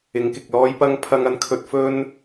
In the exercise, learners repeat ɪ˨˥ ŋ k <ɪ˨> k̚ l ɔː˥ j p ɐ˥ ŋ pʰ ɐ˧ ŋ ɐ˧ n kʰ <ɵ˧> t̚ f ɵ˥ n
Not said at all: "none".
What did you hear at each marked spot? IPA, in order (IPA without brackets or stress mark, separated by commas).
ɪ˨, ɵ˧